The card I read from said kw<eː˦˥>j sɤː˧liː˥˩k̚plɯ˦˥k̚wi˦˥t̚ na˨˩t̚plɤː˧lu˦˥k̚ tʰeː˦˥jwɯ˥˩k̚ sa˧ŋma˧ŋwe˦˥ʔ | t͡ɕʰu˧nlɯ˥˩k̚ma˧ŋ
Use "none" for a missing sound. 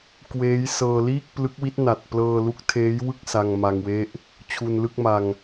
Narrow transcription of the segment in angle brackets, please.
eː˦˥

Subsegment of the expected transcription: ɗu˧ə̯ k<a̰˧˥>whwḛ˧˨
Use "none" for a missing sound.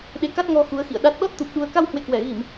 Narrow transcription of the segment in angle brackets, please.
a˧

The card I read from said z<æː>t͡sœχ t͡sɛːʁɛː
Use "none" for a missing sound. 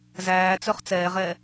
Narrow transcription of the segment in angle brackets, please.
æː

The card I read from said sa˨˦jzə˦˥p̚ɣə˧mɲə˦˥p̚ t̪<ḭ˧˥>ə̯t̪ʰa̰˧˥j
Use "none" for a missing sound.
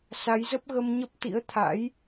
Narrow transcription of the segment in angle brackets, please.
ḭ˧˥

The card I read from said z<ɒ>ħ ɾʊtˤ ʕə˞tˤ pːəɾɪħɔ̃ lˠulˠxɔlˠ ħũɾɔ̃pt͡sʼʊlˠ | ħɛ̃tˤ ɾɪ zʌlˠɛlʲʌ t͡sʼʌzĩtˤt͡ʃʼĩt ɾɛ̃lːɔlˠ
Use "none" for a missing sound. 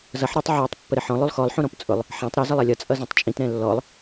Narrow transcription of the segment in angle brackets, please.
ʌ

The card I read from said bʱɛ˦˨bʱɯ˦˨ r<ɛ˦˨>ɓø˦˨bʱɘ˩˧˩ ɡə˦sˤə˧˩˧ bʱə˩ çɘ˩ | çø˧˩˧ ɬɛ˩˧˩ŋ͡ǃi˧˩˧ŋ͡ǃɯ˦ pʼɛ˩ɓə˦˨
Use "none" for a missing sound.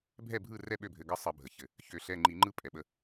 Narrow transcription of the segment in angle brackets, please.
ɛ˦˨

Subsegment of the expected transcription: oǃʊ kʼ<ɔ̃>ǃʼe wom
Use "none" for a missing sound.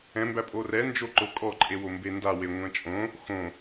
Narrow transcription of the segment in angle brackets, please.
ɔ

